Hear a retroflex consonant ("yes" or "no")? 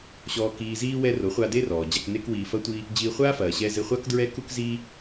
no